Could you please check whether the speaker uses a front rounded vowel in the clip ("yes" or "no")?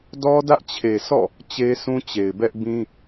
no